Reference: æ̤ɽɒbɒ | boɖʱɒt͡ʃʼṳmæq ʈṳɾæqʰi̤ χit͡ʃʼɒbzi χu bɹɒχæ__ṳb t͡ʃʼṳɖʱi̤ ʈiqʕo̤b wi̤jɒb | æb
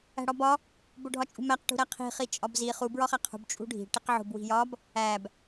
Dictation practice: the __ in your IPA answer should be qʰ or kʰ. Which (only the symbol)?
qʰ